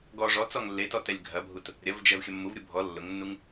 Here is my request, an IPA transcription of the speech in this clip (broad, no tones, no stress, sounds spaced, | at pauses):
ɡ ɔ ʐ ɔ t͡s ɔ ŋ lː e t ɔ t ɛ lʲ ɡʱ ɐ bʱ u t | ɾʲ ɐ v d͡ʒ ɛ v xʲ ɐ mː u v ɾʲ u bʱ ɔ lː ʊ ŋ nː u ŋ